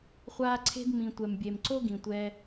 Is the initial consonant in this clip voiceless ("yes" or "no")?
yes